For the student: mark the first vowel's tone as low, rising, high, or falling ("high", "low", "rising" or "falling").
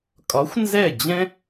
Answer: rising